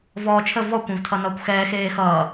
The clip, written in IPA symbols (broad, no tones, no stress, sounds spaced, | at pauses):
v ɔː t͡ʃʰ ə v ɔ kʷ ɛ̃ v tʰ ʌ n ʌː kʷ x ɛː x eː x ʌː